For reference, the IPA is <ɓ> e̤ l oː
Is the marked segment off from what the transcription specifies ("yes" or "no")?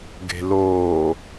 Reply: yes